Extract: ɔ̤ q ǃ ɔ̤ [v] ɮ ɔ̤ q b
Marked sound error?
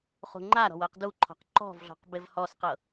no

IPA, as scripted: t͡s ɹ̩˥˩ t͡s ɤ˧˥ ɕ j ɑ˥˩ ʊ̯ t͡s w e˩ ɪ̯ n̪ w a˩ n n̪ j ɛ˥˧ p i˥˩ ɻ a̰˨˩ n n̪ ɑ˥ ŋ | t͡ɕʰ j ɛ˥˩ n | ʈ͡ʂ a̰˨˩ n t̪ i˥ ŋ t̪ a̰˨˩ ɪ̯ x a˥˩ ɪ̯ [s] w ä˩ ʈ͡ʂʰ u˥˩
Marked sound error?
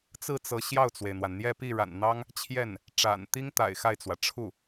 yes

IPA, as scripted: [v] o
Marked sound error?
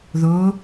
yes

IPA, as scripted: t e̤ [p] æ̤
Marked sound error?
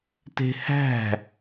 yes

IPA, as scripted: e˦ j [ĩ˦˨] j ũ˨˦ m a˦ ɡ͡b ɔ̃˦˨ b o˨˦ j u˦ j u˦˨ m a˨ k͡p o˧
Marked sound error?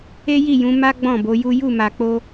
yes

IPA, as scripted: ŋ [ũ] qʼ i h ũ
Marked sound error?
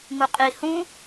yes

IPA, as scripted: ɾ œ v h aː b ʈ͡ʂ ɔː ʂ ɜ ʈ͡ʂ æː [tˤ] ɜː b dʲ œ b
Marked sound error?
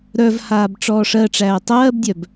no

